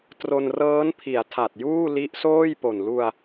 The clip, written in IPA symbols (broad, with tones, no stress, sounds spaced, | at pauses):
t r o˧ n r ɤː˦˥ n pʰ i˩˦ a̯ tʰ a˨˩ t̚ j uː˥˩ l i˦˥ ʔ s oː˥˩ j p o˨˩ n l u˧ a̯